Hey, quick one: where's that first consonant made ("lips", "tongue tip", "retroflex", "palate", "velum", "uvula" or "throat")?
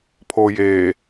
lips